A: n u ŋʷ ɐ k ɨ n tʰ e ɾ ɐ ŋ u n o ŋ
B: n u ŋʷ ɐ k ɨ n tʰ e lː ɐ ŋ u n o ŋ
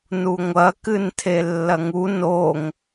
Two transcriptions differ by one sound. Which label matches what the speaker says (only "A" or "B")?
B